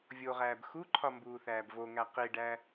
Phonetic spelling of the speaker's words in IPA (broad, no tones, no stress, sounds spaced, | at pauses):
vʲ o ʁ æː b x u ǃʰ ɒ m b uː θ æː b v o ŋ æ q i ɖ æ